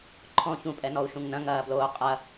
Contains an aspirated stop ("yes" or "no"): yes